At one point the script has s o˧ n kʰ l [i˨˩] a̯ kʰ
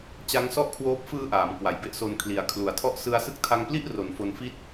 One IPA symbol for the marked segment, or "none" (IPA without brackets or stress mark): i˩˦